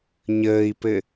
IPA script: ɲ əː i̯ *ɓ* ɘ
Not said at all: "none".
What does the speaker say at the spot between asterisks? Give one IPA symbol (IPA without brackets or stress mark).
p